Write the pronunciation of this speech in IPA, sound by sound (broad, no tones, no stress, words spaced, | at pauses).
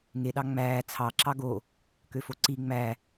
ŋeɗɑ ŋ͡mæː t͡sʰɑǁɑ ɡo | køfoǀi ŋ͡mæ